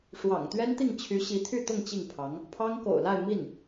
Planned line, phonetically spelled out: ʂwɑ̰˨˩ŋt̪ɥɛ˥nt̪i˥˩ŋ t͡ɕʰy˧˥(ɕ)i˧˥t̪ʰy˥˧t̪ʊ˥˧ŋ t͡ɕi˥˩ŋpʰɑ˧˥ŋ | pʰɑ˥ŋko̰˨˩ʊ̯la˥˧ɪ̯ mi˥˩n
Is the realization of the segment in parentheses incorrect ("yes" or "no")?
no